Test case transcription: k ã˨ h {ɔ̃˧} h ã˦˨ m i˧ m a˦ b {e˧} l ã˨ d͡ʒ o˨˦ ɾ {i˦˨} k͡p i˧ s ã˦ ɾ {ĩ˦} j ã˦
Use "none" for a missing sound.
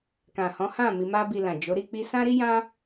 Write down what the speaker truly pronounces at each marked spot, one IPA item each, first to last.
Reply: ɔ̃˨˦, i˧, i˦˨, i˦

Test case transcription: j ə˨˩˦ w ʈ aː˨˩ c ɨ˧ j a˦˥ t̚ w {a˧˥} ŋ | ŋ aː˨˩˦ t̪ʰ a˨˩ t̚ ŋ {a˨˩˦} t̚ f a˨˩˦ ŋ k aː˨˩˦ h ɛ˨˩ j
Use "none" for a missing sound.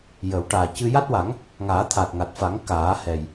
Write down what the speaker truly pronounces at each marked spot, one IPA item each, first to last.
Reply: a˨˩˦, a˨˩

